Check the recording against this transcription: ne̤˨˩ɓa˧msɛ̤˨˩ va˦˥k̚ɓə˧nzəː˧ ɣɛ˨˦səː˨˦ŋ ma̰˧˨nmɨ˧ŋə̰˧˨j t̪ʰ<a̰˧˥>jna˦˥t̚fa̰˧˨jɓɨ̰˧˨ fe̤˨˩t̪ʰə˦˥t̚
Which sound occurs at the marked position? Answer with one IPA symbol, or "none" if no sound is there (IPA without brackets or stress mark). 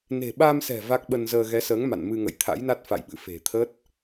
a̰˧˥